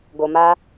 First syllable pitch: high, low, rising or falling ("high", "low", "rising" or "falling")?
low